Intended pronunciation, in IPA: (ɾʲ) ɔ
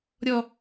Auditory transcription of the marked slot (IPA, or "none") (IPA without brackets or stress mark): ɾʲ